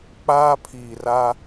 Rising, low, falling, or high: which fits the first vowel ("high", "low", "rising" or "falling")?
high